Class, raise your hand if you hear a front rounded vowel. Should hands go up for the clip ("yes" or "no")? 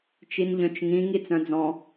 yes